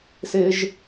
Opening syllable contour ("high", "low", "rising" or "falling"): high